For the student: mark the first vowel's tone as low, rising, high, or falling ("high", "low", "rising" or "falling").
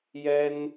high